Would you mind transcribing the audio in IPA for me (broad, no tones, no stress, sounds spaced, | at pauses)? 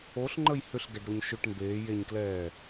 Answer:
o ɬ ŋ͡ǃ ə j h ʏ ɬ ɡ ɛ ɖ ɾ u ɲ ʃ ʏ ʈ m b eː j e ɲ k l ɛː